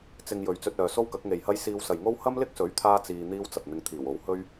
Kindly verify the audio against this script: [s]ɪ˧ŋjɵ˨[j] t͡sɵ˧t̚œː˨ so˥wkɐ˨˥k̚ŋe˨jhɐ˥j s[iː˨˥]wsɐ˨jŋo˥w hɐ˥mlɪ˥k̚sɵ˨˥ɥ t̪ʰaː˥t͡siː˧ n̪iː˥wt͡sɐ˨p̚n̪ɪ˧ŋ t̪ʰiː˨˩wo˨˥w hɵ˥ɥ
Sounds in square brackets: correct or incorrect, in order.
incorrect, incorrect, incorrect

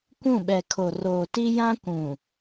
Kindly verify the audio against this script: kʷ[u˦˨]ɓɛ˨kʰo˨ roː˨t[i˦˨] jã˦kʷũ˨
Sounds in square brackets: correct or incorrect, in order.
incorrect, incorrect

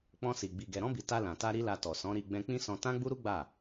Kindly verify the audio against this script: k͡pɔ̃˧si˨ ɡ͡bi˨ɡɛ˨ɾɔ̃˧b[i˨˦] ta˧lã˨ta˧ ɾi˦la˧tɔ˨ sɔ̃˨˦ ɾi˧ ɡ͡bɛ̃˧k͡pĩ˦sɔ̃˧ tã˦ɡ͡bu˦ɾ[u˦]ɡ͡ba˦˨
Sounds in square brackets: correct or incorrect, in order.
incorrect, correct

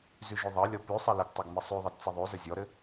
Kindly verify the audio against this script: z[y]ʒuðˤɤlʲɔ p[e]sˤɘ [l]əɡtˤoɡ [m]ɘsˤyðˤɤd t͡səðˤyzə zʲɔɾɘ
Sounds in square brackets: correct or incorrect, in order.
correct, incorrect, correct, correct

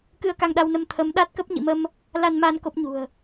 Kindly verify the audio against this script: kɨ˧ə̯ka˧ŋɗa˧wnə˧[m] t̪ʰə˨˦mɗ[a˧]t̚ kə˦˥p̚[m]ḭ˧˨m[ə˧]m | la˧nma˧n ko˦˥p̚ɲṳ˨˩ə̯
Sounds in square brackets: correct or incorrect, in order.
correct, incorrect, incorrect, correct

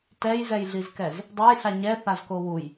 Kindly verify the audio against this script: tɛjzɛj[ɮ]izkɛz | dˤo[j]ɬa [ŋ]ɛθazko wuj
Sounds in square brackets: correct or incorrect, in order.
correct, correct, incorrect

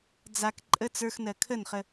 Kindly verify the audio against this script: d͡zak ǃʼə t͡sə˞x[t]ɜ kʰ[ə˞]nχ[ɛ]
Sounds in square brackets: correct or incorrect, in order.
incorrect, incorrect, incorrect

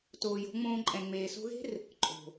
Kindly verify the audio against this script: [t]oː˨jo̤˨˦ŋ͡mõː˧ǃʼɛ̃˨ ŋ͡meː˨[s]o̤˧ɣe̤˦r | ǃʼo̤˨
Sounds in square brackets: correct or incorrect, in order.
correct, correct

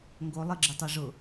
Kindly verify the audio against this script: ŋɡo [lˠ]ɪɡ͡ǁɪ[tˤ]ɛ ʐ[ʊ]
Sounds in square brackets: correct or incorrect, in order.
correct, correct, correct

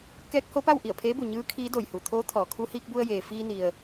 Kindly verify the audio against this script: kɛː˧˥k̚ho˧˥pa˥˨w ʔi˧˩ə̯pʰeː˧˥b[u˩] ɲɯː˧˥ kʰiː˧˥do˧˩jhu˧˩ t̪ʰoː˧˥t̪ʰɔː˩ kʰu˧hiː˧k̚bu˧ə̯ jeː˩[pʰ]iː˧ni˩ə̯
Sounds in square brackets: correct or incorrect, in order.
correct, incorrect

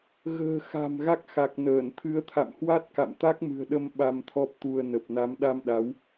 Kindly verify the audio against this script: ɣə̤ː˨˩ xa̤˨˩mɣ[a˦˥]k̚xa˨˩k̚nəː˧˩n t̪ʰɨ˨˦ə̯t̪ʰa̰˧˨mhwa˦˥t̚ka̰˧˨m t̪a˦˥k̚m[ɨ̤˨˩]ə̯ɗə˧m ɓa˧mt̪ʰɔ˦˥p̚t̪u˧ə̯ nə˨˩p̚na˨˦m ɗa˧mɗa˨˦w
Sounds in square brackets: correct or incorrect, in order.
correct, correct

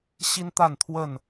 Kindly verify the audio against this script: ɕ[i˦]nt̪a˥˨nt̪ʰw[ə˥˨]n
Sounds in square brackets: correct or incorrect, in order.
correct, correct

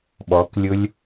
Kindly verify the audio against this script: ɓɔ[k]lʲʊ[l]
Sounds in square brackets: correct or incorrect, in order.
correct, incorrect

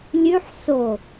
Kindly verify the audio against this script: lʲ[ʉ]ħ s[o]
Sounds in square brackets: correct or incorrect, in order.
correct, correct

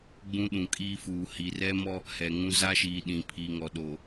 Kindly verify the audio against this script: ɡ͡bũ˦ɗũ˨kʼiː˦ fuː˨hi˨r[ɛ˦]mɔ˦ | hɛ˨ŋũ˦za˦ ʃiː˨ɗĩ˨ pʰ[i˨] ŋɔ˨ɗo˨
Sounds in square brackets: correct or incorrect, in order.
correct, correct

